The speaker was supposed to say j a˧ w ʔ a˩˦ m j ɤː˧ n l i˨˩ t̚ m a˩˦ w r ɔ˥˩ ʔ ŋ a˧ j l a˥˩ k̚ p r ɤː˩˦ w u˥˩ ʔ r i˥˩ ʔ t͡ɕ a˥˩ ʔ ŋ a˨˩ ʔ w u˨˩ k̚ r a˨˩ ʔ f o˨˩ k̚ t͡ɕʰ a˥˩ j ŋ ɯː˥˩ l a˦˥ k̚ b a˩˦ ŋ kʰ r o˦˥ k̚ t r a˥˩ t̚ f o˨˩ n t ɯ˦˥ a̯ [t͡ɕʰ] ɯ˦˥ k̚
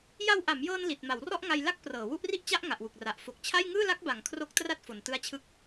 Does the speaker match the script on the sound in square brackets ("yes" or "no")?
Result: yes